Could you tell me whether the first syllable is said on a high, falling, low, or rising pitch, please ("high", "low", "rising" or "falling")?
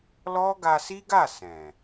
high